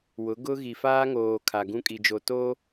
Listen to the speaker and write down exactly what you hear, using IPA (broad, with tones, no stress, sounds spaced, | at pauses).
w ʊ˨˦ ɡ ʊ˦ ɣ i˨ f aː˦ ŋ oː˨ kʰ a˨ ɡ ũ˦ kʼ i˨ d͡ʒ o˨ t oː˦